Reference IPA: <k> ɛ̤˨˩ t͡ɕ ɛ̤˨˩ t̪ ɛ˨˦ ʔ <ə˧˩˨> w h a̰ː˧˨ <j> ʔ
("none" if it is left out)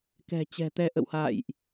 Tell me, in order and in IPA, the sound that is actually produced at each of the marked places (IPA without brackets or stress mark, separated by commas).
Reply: k, ə̰˧˨, j